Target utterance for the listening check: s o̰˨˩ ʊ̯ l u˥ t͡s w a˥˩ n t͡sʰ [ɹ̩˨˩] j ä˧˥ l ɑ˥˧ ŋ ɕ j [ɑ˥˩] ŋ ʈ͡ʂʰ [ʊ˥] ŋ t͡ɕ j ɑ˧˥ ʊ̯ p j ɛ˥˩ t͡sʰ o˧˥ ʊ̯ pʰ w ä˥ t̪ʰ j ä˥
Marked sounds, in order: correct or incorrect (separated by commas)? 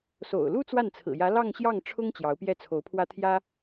correct, correct, correct